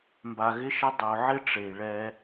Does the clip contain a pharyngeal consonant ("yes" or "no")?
yes